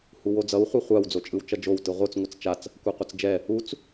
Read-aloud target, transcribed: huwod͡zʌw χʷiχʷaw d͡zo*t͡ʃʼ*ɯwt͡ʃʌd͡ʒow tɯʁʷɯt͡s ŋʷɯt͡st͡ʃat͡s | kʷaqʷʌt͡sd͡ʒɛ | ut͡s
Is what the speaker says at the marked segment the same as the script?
yes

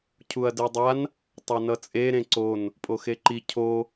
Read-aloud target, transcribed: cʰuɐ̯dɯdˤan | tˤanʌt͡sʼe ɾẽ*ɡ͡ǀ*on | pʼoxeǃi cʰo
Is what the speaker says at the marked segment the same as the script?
no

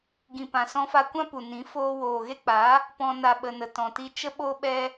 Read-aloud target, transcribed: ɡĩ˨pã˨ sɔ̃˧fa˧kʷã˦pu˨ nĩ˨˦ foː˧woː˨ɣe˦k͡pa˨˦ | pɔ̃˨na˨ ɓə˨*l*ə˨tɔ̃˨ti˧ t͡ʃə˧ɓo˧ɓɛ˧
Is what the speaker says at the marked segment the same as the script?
no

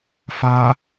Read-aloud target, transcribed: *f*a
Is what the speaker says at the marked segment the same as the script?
yes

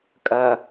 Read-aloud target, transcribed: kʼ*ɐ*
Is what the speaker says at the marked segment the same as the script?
yes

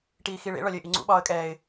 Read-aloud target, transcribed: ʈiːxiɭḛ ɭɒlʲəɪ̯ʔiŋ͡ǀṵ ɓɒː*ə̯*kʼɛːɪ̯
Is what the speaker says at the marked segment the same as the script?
yes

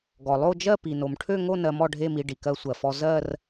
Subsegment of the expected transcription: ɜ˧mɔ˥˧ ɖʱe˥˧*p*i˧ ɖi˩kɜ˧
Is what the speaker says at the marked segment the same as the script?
no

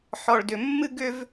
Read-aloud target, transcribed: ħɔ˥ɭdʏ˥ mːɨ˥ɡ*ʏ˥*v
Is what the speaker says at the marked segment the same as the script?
yes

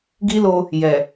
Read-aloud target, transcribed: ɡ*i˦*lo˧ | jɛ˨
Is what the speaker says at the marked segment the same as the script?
yes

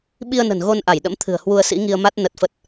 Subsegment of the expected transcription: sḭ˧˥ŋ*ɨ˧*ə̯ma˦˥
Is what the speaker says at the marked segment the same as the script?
no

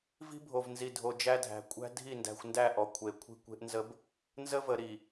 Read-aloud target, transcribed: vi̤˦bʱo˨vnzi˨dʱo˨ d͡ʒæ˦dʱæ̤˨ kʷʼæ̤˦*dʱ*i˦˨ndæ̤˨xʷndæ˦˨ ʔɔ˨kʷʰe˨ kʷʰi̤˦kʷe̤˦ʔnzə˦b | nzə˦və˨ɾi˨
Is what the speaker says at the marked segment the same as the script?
yes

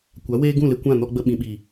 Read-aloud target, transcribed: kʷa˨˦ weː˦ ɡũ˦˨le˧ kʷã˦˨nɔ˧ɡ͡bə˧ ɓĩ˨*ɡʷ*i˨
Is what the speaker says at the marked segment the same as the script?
no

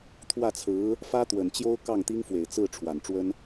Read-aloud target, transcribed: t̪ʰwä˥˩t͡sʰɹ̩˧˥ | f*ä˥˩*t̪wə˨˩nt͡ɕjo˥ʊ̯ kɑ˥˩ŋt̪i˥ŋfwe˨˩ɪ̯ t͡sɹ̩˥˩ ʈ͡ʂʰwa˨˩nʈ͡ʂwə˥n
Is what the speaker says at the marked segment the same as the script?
no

